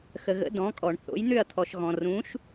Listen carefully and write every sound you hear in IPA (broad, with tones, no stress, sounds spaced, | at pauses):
x ə˩ ɣ ə̰˩˥ d ɔ̃˩˥ kʼ ɔ˩ ɳ θ o̰˩˥ j n̪ ʏ˥˩ ɐ̯ t̪ʰ ɔ˩ ʃ ɣ ɔ̃˩ r ũː˩˥ ʃ